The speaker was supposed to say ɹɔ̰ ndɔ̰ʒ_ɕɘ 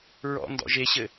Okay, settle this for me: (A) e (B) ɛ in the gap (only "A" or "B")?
A